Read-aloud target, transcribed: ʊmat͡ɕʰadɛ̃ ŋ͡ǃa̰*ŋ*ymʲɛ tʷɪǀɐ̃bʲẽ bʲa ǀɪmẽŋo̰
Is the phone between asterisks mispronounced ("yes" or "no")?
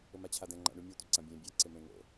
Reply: yes